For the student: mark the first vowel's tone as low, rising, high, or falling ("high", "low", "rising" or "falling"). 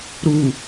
low